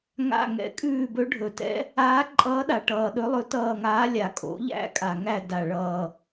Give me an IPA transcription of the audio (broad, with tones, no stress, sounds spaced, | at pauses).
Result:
ŋ a̰˦˨ ŋ ɛ̰˧˥ kʼ ʉː˦˨ b ɵ˧˥ ɖʱ ɵ˨˩ t ɛ̰˧˥ | aː˧˥ ǃʼ ʌː˧˥ ɗ a˨˩ ʈ ʌː˨˩ ɗ ɵ˧˥ lˠ ɵ˧˥ t ʌː˦˨ ŋ aː˧˥ lʲ a˨˩ kʼ o̰˩˥ ʎ æ̰˧˥ kʼ a˨˩ ŋ æ˦˨ d a˨˩ ɭ ʌː˨˩